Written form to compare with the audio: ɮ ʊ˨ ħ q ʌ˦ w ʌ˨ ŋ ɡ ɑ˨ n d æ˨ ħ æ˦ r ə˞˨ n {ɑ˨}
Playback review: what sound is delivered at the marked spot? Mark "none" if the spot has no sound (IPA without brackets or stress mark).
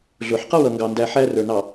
ɑ˨